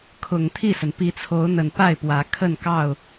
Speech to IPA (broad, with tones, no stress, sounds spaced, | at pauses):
kʰ ʊ˨˩ ŋ t̪ʰ i˥˨ s ə˩ n p i˨˦ t͡sʰ o˨˦ ʊ̯ n̪ ə˨˩ n p a˥˨ ɪ̯ p w ä˨˦ kʰ ə˥˨ n k ɑ˥˨ ʊ̯